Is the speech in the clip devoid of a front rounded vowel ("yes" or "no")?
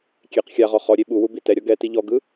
yes